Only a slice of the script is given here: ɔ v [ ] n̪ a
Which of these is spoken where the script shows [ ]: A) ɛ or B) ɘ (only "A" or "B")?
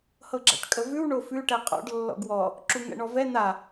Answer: A